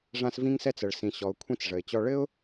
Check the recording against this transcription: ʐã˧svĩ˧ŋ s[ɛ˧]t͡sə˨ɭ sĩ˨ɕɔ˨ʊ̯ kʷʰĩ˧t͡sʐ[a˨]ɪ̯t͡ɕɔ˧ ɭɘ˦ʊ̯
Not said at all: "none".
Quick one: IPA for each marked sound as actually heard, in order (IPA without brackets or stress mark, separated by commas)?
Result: ɛ˧, ə˨